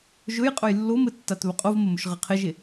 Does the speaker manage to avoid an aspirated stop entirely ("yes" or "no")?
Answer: no